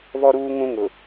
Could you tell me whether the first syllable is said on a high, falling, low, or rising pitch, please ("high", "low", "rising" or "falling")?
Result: high